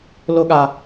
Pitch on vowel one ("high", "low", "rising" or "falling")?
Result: high